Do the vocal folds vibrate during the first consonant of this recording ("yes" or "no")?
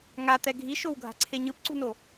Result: yes